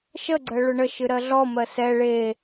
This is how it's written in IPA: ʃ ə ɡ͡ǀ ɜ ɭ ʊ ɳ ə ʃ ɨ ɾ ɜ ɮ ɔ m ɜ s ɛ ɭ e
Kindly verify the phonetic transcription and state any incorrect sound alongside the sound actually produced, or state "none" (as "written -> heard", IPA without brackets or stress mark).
none